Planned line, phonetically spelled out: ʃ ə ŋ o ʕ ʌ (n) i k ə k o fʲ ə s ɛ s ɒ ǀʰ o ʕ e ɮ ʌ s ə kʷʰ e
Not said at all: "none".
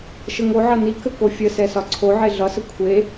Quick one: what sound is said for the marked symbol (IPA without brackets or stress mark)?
n